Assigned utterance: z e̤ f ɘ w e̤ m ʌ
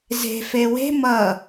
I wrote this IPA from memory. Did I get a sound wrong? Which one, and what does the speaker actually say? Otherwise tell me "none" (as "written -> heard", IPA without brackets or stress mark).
ɘ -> e